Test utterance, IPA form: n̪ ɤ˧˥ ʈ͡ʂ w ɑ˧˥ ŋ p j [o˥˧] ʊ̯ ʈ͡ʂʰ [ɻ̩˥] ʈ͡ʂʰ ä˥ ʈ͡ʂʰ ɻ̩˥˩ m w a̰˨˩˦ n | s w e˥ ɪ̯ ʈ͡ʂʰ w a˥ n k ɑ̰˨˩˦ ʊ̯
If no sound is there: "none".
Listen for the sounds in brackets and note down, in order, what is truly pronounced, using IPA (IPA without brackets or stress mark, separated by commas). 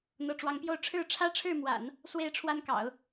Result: o˥˧, ɻ̩˥˩